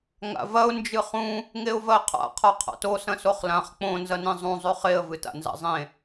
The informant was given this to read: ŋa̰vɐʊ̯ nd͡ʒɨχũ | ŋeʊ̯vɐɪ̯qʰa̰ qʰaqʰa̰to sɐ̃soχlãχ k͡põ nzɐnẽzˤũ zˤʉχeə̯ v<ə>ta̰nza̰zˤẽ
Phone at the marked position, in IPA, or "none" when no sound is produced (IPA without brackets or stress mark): ɨ